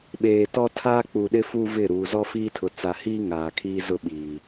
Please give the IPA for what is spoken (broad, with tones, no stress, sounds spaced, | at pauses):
ɓ eː˨ t ɔ˦ tʰ aː˦ k͡p u˨ ɗ ɪ˦ f u˦ v ɪ˦˨ ɾ uː˨ z ɔ˦ f iː˦ tʰ ʊ˨ t͡s a˨ h iː˦ ŋ aː˨ kʰ iː˦ z ʊ˦ ɓ iː˨